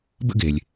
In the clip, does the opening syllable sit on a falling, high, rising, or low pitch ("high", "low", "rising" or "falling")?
high